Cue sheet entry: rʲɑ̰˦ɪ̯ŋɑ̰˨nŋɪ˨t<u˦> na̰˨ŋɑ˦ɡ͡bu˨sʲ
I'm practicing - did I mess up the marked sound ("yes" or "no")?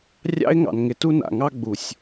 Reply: no